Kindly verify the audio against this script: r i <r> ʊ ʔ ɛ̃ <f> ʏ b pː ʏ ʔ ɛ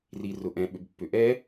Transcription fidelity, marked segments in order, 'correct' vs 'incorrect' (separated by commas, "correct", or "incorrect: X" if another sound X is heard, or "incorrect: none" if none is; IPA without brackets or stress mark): correct, incorrect: ɓ